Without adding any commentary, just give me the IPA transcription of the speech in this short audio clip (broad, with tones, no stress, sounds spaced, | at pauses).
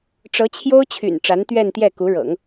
ʈ͡ʂ ɤ˧˥ t͡ɕʰ j o˥ ʊ̯ t͡ɕʰ y̰˨˩ n ʈ͡ʂ a˧˥ n t̪ ɥ ɛ˥˧ n t̪ j ɛ˥˩ k u˧˥ ɻ ɤ̰˨˩˦ ŋ